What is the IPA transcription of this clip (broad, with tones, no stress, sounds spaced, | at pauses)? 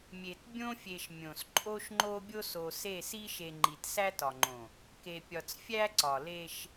mʲ e˨ t bʲ õ˦ fʲ e˨ ʃ mʲ õ˨ s ǃʼ o˦ ʃ ŋ͡ǃ o˦ bʲ o˦ s o˨ s e˦˨ s i˦ ʃ e˨ ŋ͡ǃ i˨ t s æ˦ t ɒ˨ ŋ͡ǃ õ˨ | k e˨ pʲ ɒ˨ t͡s fʲ æ˦ ǀ ɒ˨ l e˦ ʃ